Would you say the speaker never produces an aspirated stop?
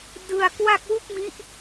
yes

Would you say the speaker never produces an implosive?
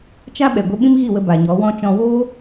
no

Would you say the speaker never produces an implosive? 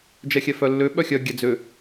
no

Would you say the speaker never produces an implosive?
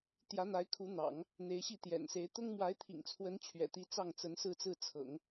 yes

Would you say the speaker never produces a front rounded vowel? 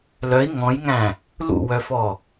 no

